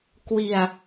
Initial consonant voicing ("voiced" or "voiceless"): voiceless